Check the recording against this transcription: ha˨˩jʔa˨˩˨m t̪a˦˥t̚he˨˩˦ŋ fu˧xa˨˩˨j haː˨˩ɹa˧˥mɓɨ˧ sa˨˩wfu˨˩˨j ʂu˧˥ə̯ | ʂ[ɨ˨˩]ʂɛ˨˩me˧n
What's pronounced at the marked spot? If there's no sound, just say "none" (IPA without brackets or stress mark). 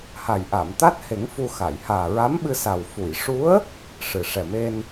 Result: ɨ˨˩